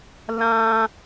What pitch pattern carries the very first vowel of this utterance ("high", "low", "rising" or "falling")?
high